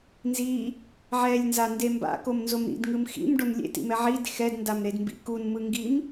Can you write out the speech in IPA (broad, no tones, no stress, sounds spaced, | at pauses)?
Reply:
n z i | ʕ ɛ lʲ n z a n d e m b a̰ k o m n z o m ɾ ḭ d ŋ ɯ m x ḭ m ɖ o n lʲ ḛ t ḭ m ɛ ʕ i d x ɛ d n d a m ɾ e d m b ḭ k u n m ɯ ŋ ɡ i m